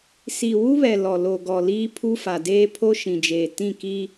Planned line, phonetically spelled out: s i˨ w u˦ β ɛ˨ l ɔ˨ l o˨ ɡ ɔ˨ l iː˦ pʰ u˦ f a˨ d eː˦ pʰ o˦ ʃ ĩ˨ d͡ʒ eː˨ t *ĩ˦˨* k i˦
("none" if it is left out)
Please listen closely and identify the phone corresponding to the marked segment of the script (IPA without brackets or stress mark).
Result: ĩ˦˨